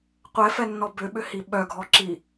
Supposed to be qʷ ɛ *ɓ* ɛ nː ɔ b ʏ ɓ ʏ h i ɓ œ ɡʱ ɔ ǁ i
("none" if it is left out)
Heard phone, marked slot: f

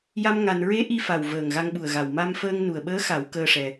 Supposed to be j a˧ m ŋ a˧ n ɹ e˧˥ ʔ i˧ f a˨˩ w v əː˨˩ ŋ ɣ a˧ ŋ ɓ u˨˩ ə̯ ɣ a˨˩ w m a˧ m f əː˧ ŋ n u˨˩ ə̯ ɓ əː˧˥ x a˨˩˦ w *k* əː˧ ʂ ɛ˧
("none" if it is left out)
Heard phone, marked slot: k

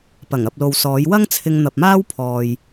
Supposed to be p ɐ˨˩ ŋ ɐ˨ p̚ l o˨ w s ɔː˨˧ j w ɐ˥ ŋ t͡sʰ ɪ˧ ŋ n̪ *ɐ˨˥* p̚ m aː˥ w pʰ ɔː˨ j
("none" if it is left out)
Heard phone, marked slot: ɐ˨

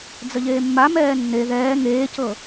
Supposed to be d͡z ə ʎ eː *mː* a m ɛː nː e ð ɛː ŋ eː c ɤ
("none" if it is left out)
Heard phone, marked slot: mː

